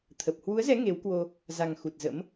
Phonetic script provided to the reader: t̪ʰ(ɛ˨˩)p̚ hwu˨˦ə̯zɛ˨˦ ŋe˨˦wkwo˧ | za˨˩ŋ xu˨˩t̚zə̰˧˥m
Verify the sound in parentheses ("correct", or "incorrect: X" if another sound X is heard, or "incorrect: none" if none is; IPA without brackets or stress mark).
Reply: incorrect: ə˨˩